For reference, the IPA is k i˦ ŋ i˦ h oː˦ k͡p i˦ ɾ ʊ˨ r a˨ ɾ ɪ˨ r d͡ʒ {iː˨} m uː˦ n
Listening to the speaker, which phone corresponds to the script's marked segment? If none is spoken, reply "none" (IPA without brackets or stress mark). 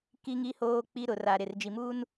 i˨